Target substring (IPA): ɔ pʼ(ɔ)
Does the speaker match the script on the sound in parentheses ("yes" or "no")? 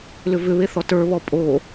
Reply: no